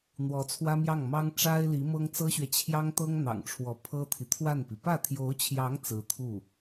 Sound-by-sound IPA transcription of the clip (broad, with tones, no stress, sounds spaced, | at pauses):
n̪ w ɔ˧˥ t͡sʰ w ä˥ m j ɑ˥˩ ŋ m ɑ˥ ŋ ʈ͡ʂ a˥ ɪ̯ l i˧˥ m ɤ˥ ŋ t͡s ɤ˥ ɕ ɥ ɛ˨ t͡ɕʰ j ɑ˥ ŋ t̪ ɤ˥ ŋ n̪ ɑ̰˨˩ ŋ ʈ͡ʂʰ w ɔ˧˥ pʰ ɤ˥ t̪ʰ i˨ t̪ʰ w a˥˩ n p i˩ p ä˥˩ t̪ʰ j o˧˥ ʊ̯ t͡ɕʰ j ɑ˧˥ ŋ t͡s ɹ̩˧˥ t̪ʰ u˥˩